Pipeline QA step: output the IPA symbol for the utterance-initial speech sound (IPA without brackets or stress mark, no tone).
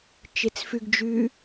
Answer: t͡ʃ